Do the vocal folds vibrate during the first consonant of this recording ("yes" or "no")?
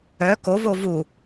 no